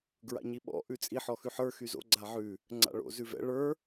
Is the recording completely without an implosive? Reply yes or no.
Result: no